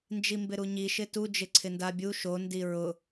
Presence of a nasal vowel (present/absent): absent